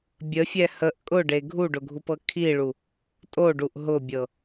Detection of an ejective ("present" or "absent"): present